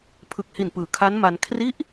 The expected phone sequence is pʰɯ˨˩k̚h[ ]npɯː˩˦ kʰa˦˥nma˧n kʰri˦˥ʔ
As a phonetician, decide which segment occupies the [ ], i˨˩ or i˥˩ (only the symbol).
i˨˩